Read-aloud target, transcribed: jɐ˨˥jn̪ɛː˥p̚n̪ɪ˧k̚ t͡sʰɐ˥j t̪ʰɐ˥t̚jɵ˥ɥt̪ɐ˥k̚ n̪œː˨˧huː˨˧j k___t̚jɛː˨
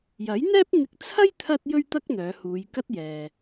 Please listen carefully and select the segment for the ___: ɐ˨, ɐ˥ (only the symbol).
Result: ɐ˥